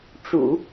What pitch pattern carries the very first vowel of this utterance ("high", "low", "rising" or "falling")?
low